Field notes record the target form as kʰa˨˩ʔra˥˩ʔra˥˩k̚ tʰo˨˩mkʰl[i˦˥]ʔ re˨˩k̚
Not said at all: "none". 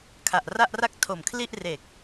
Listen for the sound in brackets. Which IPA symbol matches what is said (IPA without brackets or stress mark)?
i˥˩